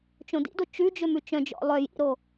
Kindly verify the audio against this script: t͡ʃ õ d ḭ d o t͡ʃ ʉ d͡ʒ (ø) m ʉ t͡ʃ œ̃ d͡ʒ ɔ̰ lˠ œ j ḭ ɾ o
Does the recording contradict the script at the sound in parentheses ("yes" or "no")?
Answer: no